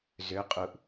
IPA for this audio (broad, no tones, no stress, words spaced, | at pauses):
zø qʼuʔ